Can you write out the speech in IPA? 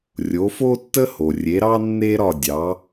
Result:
rʲ o˩˥ f o˥ tː ə˥ h o˩ rʲ e˩˥ ɾ ɑ˥ nː e˥ ɾ ɒ˥˩ dʲ ɑ˩˥

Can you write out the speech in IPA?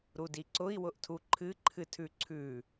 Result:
ɾ u d i ǀ ʊ i̯ w ʊ ʔ tʰ u ǃʰ ɨ ǃʰ ɨ tʰ ʉ ǀʰ ʉ

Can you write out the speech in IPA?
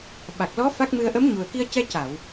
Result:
ɓ a˨˩ k̚ l ɔ˧˥ f a˦˥ k̚ m ɨ˧ ə̯ ʔ ə˧˥ m ɲ u˨˩ ə̯ k i˧ ə̯ c ɛ˧ c a˨˩˨ w

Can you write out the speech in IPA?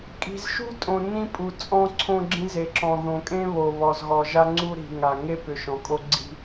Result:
kʼ i̤˨ z ʃ ṳ˦ tʼ õ˨ n ĩ˦ pʼ u˨ t͡sʼ ɔ̃˦ ǀʰ õ˦ ɡ͡ǁ ĩ˦ z e˨ ǁ ɔ̃˨ ð õ˨ kʼ ẽ˦ β o˨ β ɔ˨ z ɣ ɔ˨ ʒ a˦ ŋ͡ǀ u˦ ɾ i̤˨ ŋ a˨ ŋ e˦ p ʏ˨ ʃ ɔ̃˨ kʼ o˦ ɡ͡ǀ i̤˦

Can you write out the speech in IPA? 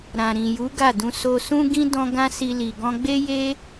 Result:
ɾ ã˨ ɾ ĩ˨ j u˨˦ ɡ a˦˨ d ũ˧ s o˧ s ũ˦ ɡ ĩ˦ d ɔ̃˦ ɡ ã˦ s i˧ l i˨ ɡ ɔ̃˧ ɡ͡b e˦ j e˦

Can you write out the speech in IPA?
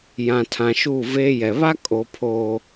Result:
j ã˨ tʰ ã˨ ʃ u˦˨ v eː˦ j ɛ˨ β a˦ kʼ o˨ pʰ oː˨

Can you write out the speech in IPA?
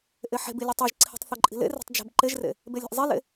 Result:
ʔ e ħ e̤ b i lʲ ɨ tˤ e ʒ ǀʰ i̤ tˤ θ ɨ ǃʼ i̤ l ḛ r e̤ tˤ d͡ʒ e̤ b ǃ e ʒ r ḛ | b e lʲ e̤ ʔ zˤ e l ḛ

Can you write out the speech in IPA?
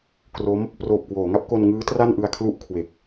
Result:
k r o˦˥ m | p r oː˨˩ p̚ k w oː˩˦ ŋ a˥˩ p̚ k o˧ n ŋ ɯː˦˥ t r a˥˩ n ʔ ɯ˧ a̯ kʰ l u˥˩ ʔ kʰ w e˨˩ k̚

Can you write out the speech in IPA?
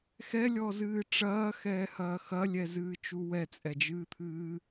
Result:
x ɛ lʲ ɔ z ɨː ʈ͡ʂ ɐː x ɛː h ɐː x ɐ lʲ ɛ z ɨː t͡ʃ u w ɛ t͡sʼ ɛ d͡ʒ ɨː t̪ʰ ɨː

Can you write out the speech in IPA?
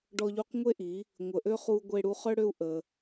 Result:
ɖ ɔ˧ ʎ u˧ q ŋʷ e˦ ʔ i˨˦ | ŋʷ ə˨ ʔ ø˦ χ u˧ ɡʷ e˧ ɽ u˧ χ œ˦ ɽ ø˦ u̯ ʔ ə˧

